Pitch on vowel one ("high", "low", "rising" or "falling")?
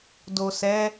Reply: low